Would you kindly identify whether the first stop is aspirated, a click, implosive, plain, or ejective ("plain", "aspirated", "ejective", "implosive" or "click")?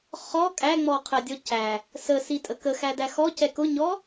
ejective